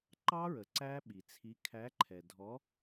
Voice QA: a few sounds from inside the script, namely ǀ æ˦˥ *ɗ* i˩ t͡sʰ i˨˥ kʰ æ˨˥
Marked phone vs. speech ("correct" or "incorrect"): incorrect